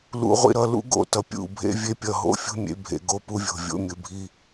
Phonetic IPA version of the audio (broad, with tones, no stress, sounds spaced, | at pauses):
l ṵ˨ ʁʷ ḭ˨ ɾ ʌ˦˨ l ṵ˦ ɡ o̰˦˨ t ʌ˨ pʲ ṵ˦˨ bʱ ḛ˦ vʲ e˦ pʲ ʌ˨ ɦ o̰˦ fʲ ṳ˦ mʲ ḛ˨˦ bʱ ḛ˨ ɡ o˦ p u˦ vʲ o̤˨ vʲ o̰˦ mʲ ɯ˨ bʱ i˦